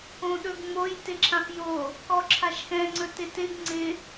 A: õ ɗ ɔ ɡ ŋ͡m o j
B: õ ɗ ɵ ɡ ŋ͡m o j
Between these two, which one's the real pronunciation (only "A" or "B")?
B